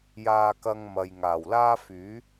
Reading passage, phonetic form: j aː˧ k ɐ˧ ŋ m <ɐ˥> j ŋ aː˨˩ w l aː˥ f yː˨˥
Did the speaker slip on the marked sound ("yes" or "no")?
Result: yes